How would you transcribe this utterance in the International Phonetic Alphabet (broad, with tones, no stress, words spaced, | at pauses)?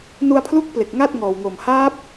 nu˧a̯pʰlu˦˥k̚ple˨˩k̚ ŋa˥˩t̚ ŋɔː˨˩wŋo˨˩m haː˦˥p̚